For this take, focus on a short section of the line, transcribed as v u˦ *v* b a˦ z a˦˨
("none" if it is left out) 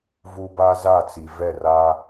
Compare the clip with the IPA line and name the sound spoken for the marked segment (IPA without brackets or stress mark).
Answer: none